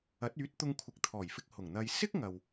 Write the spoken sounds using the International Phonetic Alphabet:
ɐ˨˥ t̚ yː˨˥ t̚ t̪ ʊ˧ ŋ kʷʰ ɪ˨ k̚ t̪ʰ ɔː˨˩ j f ɪ˧ k̚ h ʊ˨˩ ŋ n̪ ɐ˨ j s ɪ˥ k̚ ŋ ɐ˨ w

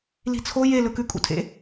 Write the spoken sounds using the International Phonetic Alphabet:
l i̤ t͡sʰ o j e l ɵ k ʉ kʼ ṵ tʰ ḛ

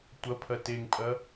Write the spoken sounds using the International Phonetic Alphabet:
tʷ ɐ pʰ ɐ t e ŋ pʼ ɐ

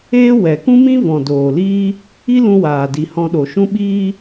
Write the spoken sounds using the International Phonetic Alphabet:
eː˦ w ɛ˨ k ũ˦ m ĩ˦ v ɔ̃˨ d oː˨ l iː˦ | i˦ l ũ˧ w aː˨ d i˨ h ɔ̃˧ ɗ o˨ ʃ ũ˦ ɓ iː˦

